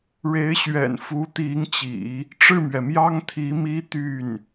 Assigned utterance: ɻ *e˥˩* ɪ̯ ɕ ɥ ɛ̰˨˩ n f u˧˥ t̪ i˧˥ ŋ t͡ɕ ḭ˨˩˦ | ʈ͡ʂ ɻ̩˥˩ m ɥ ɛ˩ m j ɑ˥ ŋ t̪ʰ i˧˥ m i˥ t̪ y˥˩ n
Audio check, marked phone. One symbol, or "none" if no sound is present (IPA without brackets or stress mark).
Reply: e˧˥